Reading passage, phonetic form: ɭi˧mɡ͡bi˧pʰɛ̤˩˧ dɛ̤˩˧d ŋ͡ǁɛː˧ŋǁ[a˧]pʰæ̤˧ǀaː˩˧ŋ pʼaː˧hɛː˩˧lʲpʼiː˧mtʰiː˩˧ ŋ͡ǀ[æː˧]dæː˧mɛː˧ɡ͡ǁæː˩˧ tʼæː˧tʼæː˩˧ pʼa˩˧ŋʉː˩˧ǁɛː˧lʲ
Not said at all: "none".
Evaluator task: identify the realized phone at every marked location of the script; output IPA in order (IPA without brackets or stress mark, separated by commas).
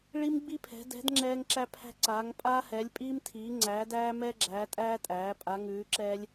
æ˧, æː˩˧